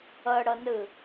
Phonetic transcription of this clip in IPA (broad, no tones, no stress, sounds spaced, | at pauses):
ɤ ɽ ɤ n ɯ